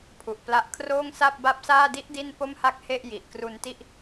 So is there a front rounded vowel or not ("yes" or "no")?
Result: no